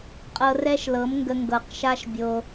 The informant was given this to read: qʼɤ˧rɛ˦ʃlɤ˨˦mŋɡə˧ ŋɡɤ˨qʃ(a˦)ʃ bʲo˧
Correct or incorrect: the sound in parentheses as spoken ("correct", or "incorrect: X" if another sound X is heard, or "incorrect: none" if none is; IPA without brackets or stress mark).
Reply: correct